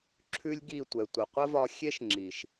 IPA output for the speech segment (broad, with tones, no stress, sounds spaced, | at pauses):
ǁʰ ʉ˦ lʲ ɡ i˦˨ tʷ ɛ˨ tʷ ə˨ qʷ ə˦ v ɒ˧ xʲ e˦ ʃ ŋ͡ǁ i˨ ʃ